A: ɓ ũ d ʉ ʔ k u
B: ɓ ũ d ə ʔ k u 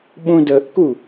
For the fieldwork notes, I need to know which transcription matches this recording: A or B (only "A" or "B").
B